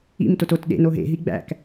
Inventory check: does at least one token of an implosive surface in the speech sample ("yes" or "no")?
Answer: yes